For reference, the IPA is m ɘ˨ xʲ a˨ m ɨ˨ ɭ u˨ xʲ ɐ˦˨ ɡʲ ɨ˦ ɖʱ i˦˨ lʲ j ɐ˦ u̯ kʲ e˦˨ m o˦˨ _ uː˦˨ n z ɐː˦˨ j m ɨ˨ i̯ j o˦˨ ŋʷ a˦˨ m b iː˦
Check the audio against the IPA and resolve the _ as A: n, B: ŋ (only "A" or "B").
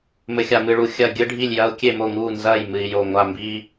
B